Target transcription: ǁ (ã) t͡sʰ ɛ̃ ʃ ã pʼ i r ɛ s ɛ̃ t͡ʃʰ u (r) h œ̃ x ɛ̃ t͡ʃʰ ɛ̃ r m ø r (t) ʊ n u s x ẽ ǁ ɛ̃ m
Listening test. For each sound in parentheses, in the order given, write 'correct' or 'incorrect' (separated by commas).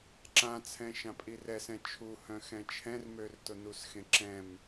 correct, incorrect, correct